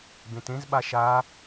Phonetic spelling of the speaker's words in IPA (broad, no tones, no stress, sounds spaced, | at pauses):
b ẽ t ẽ z ɓ a ʃ a